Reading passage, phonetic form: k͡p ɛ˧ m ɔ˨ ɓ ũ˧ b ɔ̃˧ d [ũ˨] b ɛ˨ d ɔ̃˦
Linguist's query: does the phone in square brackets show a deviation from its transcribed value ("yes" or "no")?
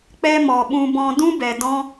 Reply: yes